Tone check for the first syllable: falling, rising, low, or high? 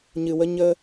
low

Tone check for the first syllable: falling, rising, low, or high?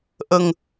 low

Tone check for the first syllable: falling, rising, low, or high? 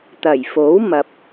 low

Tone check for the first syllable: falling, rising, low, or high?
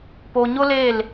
low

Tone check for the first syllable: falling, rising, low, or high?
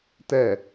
low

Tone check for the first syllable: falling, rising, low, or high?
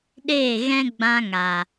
falling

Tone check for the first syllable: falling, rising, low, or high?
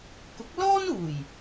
rising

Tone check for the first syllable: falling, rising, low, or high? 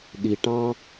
low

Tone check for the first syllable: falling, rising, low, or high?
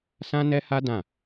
high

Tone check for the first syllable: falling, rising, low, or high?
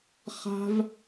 high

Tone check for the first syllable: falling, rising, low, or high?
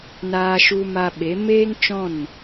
high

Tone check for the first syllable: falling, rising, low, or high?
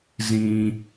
low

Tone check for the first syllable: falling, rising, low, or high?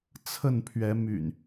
falling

